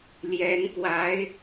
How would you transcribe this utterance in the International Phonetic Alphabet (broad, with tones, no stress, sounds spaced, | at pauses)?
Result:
l j ɛ˧˥ n k w a˧˥ ɪ̯